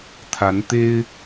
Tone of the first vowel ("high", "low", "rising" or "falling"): rising